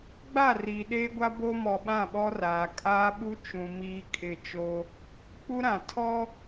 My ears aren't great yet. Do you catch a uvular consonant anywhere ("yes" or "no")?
no